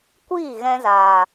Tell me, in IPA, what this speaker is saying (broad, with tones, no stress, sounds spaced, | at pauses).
kʷ iː˦˨ ɣ ɛ̃˧ z aː˨